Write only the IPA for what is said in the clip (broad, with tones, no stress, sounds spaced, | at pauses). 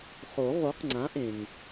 χ o˨˩˦ ʁ o˨˥ q ŋ͡ǀ ã˨˥ ʔ ẽ˩ ŋ